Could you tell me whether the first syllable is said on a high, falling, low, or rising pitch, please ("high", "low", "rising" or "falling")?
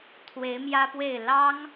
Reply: rising